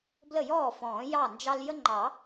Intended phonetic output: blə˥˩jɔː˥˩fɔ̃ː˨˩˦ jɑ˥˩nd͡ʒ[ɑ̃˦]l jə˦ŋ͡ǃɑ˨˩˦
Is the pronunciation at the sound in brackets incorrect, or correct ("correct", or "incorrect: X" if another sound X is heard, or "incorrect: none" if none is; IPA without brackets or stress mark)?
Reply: incorrect: ɑ˦